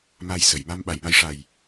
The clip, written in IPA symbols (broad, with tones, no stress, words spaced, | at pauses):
ma˧jsə˨˩˨j ma˧mɓa˨˩˨j ma˧jʂa˨˩j